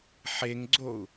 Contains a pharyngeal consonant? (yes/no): yes